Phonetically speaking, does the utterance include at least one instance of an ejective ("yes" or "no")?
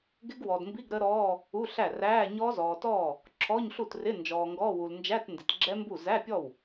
no